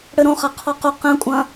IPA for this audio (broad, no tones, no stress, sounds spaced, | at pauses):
ɽ ɘ ɾ õ χ a qʰ ɔ q o q ɛ̃ kʷʼ ɐ̃